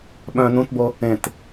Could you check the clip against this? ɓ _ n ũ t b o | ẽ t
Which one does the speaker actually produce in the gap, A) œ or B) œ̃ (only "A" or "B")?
B